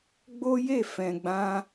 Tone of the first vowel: high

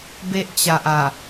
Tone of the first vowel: high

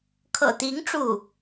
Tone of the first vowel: low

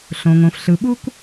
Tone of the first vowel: low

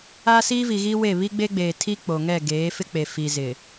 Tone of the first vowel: high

